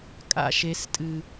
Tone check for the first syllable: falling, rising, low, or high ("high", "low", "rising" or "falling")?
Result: high